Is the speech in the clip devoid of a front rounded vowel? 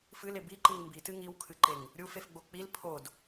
yes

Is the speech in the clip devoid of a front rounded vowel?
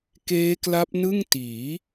yes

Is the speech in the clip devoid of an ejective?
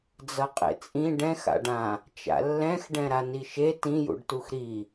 no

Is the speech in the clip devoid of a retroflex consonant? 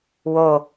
yes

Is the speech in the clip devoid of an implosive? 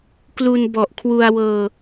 yes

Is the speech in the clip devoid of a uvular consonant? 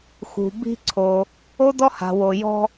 yes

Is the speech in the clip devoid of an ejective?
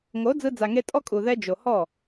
no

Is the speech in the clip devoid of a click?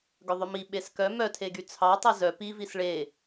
yes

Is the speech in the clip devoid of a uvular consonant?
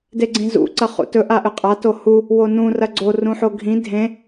no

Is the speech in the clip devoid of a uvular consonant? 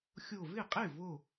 no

